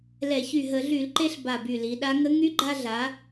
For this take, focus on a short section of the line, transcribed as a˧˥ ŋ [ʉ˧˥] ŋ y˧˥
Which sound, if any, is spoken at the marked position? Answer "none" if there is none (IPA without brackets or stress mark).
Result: ə˧˥